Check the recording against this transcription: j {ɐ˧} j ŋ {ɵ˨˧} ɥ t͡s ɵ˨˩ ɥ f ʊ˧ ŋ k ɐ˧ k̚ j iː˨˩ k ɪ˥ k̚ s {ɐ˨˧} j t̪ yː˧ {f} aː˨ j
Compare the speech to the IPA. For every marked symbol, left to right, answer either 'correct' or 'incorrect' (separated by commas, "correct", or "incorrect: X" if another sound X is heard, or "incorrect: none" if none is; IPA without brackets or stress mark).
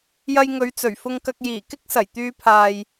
correct, correct, incorrect: ɐ˨˩, incorrect: pʰ